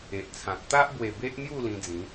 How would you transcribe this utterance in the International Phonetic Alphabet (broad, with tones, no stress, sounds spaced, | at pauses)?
e˨ ʔ t͡sʰ ã˨ t̚ t̪ a˦ ʔ b w e˨˩ b e˦ ʔ n̪ j u˥˧ l ĩ˧ d͡z ĩ˨˦